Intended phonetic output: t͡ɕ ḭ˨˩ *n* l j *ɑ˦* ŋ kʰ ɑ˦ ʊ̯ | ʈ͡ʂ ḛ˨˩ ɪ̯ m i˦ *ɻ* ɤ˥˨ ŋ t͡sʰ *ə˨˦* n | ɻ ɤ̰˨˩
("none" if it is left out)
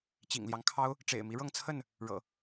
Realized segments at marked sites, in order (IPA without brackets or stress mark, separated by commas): ŋ, ɑ˦, ɻ, ə˥˨